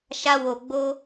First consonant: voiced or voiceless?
voiceless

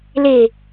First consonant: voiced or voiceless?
voiced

